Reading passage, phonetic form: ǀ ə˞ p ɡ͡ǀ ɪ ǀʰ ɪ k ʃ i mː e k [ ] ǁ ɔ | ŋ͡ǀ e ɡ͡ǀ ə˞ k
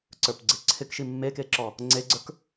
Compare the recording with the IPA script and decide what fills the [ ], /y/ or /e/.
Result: e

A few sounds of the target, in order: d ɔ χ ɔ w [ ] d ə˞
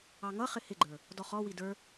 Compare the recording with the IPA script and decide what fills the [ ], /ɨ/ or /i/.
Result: i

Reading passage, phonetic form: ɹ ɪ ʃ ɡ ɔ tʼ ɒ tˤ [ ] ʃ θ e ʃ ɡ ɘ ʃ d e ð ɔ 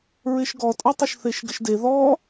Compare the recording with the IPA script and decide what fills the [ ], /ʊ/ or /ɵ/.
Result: ʊ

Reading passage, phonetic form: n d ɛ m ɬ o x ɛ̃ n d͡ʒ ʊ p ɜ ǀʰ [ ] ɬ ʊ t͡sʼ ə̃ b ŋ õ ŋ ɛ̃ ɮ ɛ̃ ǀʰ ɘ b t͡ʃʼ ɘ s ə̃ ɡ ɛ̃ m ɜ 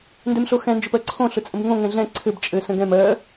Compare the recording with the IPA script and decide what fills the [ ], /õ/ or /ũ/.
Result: õ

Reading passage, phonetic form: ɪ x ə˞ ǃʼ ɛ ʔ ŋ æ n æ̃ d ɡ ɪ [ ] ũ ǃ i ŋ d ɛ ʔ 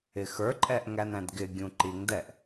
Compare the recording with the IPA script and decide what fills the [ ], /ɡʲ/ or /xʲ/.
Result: ɡʲ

